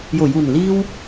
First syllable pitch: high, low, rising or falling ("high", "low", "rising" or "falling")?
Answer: low